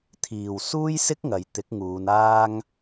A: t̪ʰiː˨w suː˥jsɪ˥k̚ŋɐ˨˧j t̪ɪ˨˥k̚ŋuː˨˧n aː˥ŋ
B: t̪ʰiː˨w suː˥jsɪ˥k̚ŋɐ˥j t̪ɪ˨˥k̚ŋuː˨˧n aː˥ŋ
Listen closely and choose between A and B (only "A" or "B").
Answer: A